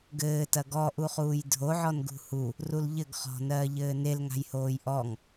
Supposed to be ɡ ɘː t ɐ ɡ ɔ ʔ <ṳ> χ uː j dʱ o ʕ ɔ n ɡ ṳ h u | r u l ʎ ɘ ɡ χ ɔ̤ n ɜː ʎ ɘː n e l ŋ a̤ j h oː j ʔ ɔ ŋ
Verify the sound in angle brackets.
incorrect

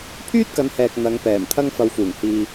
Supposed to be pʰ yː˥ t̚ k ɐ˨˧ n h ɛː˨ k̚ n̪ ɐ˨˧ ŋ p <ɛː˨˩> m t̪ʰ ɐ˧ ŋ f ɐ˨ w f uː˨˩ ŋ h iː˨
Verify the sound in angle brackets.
correct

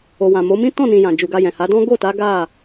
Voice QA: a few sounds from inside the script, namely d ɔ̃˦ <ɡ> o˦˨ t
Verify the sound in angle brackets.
correct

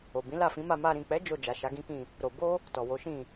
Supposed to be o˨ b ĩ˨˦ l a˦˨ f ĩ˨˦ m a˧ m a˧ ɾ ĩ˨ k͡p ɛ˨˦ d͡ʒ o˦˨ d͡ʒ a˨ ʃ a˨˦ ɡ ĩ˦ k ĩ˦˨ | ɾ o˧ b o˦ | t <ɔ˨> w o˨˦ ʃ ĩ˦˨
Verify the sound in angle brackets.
correct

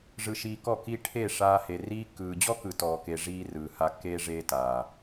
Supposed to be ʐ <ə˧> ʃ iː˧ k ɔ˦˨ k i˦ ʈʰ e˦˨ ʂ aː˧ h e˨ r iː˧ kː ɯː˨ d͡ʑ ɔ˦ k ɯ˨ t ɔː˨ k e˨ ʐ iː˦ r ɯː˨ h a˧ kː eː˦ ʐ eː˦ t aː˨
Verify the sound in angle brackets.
incorrect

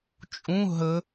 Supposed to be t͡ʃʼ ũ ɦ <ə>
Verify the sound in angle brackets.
correct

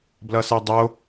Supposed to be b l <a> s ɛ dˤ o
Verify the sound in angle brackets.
incorrect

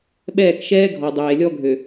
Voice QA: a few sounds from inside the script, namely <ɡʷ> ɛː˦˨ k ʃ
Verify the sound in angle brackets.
incorrect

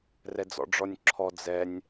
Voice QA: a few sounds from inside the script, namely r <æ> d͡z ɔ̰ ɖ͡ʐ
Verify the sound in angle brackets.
incorrect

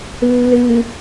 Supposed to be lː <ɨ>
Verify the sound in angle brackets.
correct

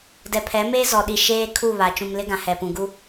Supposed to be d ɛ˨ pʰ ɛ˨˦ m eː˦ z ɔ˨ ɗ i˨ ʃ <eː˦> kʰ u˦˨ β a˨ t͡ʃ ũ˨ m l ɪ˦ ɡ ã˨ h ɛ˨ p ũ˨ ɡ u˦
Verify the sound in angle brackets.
correct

